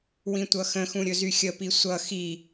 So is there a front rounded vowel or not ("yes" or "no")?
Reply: yes